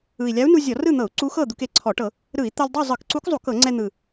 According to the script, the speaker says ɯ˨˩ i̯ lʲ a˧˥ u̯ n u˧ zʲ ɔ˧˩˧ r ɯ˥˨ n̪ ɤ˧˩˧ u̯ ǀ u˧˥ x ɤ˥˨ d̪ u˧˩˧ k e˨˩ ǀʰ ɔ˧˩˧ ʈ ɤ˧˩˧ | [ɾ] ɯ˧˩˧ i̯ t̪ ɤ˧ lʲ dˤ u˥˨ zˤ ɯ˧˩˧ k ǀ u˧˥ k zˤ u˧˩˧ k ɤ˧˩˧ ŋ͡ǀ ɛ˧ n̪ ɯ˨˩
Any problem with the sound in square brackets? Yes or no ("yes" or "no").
no